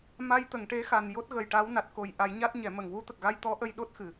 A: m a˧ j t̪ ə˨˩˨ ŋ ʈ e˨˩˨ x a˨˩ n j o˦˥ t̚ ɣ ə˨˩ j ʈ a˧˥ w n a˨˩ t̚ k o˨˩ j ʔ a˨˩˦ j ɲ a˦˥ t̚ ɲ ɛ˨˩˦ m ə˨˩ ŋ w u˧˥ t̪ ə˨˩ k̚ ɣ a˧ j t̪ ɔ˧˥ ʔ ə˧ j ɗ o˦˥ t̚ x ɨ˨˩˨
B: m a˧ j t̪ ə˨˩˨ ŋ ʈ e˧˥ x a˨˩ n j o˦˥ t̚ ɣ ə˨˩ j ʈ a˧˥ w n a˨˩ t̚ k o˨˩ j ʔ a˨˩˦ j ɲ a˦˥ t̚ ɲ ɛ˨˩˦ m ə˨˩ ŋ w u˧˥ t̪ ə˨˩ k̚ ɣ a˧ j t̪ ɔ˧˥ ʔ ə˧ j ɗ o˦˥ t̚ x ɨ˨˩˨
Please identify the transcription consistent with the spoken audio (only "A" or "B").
B